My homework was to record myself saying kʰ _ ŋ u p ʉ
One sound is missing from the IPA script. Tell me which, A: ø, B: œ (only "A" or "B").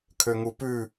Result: A